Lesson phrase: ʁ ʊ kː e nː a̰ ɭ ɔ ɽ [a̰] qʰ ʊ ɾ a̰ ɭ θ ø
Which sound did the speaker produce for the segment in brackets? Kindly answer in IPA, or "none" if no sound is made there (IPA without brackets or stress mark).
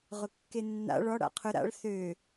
a̰